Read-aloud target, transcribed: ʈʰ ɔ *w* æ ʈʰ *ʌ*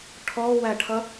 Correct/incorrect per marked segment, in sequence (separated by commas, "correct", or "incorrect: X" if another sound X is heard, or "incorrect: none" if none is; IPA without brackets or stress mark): correct, correct